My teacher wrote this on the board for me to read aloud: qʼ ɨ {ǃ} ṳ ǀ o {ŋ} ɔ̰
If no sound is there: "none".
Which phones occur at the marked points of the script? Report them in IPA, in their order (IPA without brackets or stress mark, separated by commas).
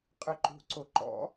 ǃ, ǃ